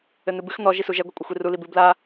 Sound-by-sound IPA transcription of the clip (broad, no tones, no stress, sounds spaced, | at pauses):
ɘ n̪ ɨ b ɨ x n̪ ɔ ʒ i s u ʒ ɛ ɡʷ ɛ kʷʼ ɘ xʷ i r u l i b ɨ b l a